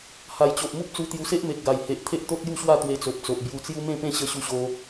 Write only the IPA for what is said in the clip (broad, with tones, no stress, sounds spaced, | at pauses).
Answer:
h a˨˩ j t͡ɕ o˨ ʔ m u˦ p̚ t͡s u˧ t̪ j u˧ s e˦ ʔ m e˨ k̚ ɡ a˨˩ j h e˨ ʔ t̪ʰ e˦ ʔ t̪ o˦ t̚ j u˥˧ ɕ w a˥˧ t̪ w e˧ t͡s o˨ p̚ t͡s o˨ ʔ b j u˧ t͡s j u˦ m ẽ˥˧ p ẽ˥˧ ɕ ə˦ ɕ u˥˧ ɕ o˦